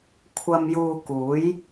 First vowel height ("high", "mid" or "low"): low